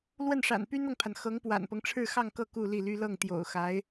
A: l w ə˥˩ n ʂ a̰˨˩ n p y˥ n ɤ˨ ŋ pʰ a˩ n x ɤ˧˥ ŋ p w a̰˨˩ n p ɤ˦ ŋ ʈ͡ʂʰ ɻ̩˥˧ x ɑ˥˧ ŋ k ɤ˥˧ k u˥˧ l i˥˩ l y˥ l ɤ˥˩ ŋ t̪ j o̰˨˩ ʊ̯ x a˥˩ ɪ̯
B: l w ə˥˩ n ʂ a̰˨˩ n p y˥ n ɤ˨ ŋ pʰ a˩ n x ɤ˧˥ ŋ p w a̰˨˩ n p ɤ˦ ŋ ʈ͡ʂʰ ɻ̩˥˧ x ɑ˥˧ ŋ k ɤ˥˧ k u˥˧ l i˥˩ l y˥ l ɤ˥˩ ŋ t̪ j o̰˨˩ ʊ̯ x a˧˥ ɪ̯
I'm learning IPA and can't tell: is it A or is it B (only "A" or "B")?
B